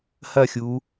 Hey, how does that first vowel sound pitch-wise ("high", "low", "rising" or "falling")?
falling